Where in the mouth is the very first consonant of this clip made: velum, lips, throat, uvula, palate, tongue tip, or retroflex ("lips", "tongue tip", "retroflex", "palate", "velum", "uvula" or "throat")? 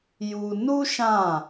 palate